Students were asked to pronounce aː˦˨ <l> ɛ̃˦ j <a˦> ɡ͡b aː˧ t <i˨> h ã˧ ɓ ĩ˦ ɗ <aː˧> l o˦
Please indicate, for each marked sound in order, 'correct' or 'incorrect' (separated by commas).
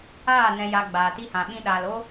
incorrect, correct, incorrect, correct